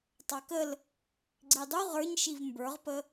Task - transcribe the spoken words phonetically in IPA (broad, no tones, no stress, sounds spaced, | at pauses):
tˤ ɑ k ə l | ɡ͡ǀ i dˤ u ʁ ə˞ ɲ ʃ i v m b ə˞ ʁ p ə